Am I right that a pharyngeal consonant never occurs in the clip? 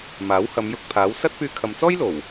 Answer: yes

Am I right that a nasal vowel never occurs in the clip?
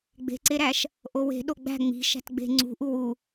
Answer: yes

